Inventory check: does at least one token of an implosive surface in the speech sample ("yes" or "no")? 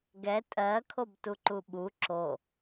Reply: yes